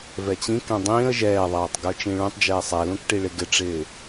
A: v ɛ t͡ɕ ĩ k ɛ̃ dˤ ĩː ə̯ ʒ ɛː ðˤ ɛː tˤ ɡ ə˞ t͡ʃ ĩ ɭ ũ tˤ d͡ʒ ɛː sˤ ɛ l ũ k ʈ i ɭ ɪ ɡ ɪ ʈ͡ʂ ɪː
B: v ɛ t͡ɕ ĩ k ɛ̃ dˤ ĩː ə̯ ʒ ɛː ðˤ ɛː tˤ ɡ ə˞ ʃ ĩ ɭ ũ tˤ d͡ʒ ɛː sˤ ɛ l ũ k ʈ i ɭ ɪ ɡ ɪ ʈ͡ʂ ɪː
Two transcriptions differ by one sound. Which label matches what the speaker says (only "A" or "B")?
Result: A